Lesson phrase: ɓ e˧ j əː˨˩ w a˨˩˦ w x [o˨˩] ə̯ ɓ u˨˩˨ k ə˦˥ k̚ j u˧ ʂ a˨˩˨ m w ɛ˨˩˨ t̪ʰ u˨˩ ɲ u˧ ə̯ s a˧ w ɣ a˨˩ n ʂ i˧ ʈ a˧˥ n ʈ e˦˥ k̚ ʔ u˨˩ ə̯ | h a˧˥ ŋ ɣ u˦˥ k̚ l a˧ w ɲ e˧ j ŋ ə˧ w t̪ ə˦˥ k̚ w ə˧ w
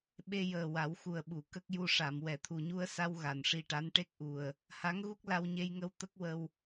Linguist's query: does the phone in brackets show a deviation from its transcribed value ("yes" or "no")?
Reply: yes